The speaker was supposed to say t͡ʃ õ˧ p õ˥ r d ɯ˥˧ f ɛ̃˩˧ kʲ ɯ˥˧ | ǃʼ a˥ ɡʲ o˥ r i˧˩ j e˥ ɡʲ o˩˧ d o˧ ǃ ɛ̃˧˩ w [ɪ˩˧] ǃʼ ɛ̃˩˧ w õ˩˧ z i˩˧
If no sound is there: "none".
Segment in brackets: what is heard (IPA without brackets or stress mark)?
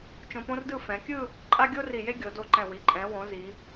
i˩˧